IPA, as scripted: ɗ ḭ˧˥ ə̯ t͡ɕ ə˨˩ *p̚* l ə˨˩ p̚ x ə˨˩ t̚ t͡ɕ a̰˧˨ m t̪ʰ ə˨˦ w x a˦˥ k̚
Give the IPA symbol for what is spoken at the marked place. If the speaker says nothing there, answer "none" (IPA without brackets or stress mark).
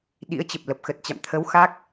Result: p̚